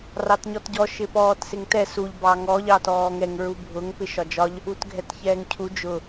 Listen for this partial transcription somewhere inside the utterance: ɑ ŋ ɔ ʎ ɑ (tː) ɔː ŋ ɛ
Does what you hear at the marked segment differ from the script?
yes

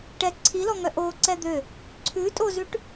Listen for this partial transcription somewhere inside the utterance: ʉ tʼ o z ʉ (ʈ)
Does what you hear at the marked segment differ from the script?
no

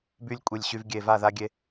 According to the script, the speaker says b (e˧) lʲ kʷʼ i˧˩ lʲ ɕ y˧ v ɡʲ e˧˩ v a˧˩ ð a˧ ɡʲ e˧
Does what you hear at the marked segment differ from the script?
yes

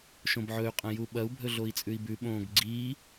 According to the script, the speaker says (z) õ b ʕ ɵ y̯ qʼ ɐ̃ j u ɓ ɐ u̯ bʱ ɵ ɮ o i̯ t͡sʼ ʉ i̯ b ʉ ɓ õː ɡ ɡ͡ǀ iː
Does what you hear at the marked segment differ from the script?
yes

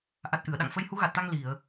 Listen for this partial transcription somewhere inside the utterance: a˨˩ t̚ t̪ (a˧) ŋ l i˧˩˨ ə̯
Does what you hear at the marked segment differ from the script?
no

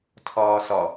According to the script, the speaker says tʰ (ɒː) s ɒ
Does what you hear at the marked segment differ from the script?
no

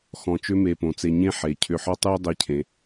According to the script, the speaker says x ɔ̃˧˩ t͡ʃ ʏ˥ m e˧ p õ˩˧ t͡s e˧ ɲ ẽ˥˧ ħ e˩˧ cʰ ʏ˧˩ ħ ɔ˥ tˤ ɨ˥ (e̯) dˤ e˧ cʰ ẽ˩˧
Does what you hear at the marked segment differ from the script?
yes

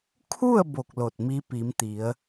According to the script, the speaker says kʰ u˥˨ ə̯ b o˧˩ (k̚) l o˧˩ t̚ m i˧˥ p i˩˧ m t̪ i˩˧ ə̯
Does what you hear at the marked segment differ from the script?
no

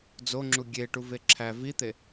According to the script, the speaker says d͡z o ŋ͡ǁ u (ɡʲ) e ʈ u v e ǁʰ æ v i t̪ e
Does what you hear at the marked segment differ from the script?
no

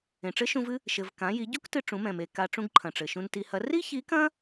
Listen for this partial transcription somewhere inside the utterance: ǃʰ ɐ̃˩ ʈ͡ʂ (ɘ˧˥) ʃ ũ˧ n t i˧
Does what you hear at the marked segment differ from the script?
yes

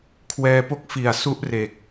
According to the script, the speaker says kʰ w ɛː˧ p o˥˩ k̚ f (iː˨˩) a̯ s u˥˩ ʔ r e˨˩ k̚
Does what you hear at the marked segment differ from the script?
yes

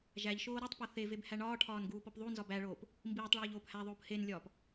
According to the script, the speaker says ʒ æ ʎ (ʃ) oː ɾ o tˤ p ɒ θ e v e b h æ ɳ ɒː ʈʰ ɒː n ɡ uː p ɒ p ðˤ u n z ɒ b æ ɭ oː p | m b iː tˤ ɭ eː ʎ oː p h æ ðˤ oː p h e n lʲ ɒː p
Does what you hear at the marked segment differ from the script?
no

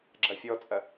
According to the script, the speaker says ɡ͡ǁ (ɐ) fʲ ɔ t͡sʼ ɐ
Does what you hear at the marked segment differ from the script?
no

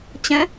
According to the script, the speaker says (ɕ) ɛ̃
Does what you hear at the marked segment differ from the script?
yes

